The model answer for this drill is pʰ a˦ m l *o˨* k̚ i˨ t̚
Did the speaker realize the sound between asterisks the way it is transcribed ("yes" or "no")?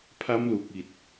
no